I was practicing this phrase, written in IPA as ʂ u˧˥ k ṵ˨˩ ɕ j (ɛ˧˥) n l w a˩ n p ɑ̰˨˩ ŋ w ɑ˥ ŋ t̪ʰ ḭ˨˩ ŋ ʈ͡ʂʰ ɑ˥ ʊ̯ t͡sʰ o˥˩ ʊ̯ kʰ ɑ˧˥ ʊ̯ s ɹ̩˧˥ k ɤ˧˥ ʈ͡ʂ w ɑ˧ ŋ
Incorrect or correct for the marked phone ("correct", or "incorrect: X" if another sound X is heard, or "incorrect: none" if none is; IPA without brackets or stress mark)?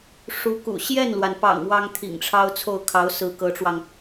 incorrect: ɛ˥˩